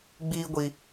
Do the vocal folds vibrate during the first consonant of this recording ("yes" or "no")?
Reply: yes